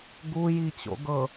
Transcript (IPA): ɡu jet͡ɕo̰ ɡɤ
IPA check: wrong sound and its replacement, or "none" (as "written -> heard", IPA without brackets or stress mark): e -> i